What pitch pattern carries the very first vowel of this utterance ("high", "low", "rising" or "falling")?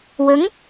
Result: rising